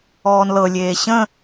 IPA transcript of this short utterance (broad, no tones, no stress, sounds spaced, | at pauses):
ɔː n l ɤ lʲ eː ɕ ə̃